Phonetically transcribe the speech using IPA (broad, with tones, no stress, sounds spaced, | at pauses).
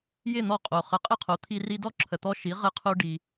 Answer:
j ɪ˥˩ n̪ ɔ˧ qʼ o˩ χ ə˩˥ qʼ ɘ˥˩ qʰ o˩˥ t̪ʰ i˧ r i˧ d ɔ˥˩ ǁʰ ə˩ t̪ ɔ˧ ʃ i˩˥ ʁ ɘ˧ qʰ o˧ ɖ i˩